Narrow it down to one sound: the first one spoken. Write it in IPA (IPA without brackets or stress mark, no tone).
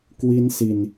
k